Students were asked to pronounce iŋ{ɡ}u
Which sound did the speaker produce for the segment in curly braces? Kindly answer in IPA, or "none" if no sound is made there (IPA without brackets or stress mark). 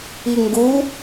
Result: ɡ